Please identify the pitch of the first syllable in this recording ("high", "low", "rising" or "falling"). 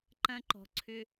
high